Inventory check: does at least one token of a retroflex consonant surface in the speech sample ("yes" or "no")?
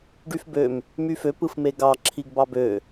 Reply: yes